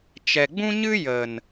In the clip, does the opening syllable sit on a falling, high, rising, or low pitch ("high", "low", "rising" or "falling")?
low